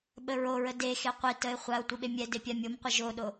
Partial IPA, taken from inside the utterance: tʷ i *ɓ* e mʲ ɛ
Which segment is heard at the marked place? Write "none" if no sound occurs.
ɓ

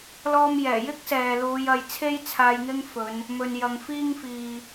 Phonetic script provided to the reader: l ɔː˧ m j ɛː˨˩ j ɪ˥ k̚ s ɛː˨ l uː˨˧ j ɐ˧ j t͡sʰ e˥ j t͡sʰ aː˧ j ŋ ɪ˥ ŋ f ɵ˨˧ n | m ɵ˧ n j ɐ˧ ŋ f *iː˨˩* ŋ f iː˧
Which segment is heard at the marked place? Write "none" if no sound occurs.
iː˥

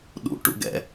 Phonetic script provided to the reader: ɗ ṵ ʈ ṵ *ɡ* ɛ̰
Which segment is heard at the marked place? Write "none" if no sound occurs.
ɡ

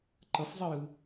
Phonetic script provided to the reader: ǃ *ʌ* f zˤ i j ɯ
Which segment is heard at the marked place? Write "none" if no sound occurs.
ʌ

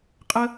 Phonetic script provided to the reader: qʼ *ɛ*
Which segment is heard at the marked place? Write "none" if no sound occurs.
ə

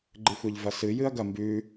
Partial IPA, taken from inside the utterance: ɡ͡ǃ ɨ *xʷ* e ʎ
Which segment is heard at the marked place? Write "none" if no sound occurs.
xʷ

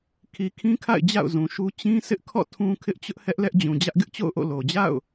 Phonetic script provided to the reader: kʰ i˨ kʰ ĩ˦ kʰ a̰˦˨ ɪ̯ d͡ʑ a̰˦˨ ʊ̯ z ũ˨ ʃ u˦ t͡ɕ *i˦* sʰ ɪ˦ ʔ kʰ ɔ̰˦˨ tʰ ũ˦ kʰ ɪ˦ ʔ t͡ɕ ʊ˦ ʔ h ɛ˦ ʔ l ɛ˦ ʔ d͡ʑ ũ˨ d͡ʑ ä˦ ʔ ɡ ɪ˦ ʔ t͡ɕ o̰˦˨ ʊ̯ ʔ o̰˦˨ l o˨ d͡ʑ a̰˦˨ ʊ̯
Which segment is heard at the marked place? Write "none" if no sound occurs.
ĩ˦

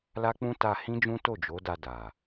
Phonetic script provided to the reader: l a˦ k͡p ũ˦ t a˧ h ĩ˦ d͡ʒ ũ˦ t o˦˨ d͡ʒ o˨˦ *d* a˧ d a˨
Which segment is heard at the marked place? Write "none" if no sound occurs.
d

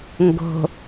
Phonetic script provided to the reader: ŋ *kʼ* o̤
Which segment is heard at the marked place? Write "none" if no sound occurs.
ɡ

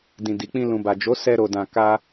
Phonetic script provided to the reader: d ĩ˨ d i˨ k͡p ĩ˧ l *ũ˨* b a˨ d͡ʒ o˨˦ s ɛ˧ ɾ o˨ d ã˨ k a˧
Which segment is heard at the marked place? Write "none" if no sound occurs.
ũ˨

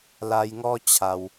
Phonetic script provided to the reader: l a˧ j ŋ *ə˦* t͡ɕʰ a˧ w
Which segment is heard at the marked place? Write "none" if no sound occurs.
ɔ˦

